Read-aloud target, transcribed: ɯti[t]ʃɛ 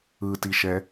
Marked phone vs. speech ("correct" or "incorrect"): incorrect